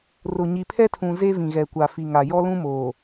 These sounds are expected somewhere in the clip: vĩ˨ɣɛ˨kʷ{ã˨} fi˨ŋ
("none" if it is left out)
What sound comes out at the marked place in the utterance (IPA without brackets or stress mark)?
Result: a˨